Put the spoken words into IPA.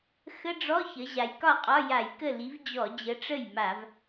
x ə˧˥˧ ɖ͡ʐ ɔ˧˥˧ ç ə˩˧ ʑ a˩˧ j k ɒ˥˩ qʼ ɒ˧˥˧ j a˧˩˧ j k ə˥˩ l i˨˥ v d͡ʑ ɔ˧˩˧ d͡ʑ ə˨˥ ʈ͡ʂ ə˥˩ j m a˧˩˧ v

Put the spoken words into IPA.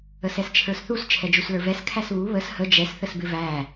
ə s ɛ s t͡ʃʰ ə˞ s θ u s t͡ʃʰ ɛ d͡ʒ u s l ə˞ v ɛ s kʰ æ s β u β ə s h ə d͡ʒ ɛ s θ ə s b ɪ v æ

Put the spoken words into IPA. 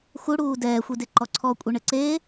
x u ɽ uː d ɛː xʷ i d e ǃ ɔ ǀʰ ɔ kʷʼ e ɳ ɘ ǀ e

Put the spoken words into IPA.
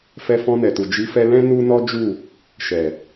f ɛ˧ f ɔ̃˧ n ɛ˨ t u˨ d͡ʒ i˨˦ f ɛ˧ l ɛ̃˦ n u˦ n ɔ˦ d͡ʒ u˦˨ | ʃ ɛ˨

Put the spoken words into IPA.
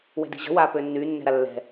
w ɛ̤ d i̤ ʑ ə̤ w aː p ø nː yː nː ɛ̤ ɾ a lː ɛ̤

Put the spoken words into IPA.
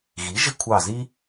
ɣ i˩˥ ʒ ɪ˦ kʷʰ ɑ˧˩ z i˦

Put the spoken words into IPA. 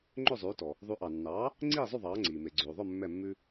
ŋ͡ǃ ø˥˩ zˤ ʉː˩˥ t ɔ˩ | ðˤ ʉ˩˥ ʔ ɑ˩ nː ɑː˩˥ | ŋ͡ǀ iː˥˩ zˤ ʉ˥˩ ðˤ ɑː˩˥ ŋ͡ǀ iː˩ m e˩ ɡ͡ǀ ʉː˩ ðˤ œ˥˩ mː ɛ˥˩ mː ʉ˥

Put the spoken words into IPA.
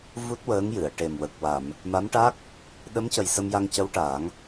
v u˦˥ t̚ w əː˧˥ ŋ j ɨ˨˩˨ ə̯ ʈ e˨˩ m w ə˨˩ k̚ w a˨˩˨ m | m a˧˥ m ʈ a˦˥ k̚ | ɗ ə˧˥ m c ə˨˩ j s ə˧ m j a˧ ŋ c ə˧˥ w ʈ a˨˩˦ ŋ

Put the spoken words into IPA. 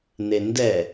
n e n d ɛ

